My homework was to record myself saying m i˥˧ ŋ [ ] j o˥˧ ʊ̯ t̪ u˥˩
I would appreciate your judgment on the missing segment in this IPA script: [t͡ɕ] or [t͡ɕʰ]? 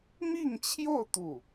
t͡ɕʰ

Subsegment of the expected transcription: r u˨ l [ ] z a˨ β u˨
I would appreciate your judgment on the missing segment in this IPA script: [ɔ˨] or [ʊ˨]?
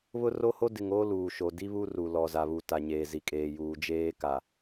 ɔ˨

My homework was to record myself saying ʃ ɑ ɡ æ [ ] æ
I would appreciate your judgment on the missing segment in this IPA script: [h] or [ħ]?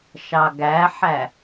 ħ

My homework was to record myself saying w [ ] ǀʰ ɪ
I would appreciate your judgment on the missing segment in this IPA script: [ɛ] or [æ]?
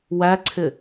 æ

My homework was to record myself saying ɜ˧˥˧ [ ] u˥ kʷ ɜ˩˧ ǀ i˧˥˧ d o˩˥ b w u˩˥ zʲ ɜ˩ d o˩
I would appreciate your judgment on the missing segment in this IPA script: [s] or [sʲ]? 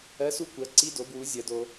s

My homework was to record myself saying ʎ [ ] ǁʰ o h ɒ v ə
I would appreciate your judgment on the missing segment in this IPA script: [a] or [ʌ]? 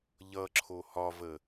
ʌ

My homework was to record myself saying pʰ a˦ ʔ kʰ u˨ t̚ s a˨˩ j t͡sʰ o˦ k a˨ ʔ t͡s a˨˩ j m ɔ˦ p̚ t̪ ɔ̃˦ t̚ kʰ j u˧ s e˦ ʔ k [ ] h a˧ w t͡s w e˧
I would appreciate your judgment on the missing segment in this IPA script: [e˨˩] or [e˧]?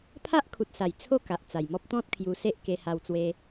e˧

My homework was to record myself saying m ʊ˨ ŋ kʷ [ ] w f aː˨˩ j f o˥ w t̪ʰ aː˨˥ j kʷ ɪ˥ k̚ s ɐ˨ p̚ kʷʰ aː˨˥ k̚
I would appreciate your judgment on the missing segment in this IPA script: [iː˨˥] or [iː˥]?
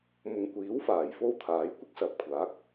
iː˨˥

